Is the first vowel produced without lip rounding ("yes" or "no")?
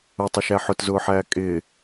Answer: no